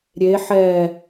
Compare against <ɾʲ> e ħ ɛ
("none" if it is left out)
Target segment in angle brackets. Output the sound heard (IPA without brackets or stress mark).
ɾʲ